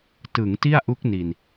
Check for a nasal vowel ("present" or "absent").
absent